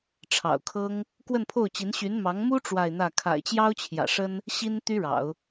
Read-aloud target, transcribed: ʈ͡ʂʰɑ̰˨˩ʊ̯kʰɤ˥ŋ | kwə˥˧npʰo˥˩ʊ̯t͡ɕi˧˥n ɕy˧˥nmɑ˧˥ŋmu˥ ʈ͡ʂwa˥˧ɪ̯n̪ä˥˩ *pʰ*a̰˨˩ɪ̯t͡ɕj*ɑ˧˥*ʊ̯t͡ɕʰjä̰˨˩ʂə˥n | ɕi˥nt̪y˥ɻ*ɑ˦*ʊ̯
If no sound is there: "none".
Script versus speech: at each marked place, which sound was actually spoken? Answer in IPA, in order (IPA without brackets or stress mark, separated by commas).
kʰ, ɑ˥, ɑ̰˨˩˦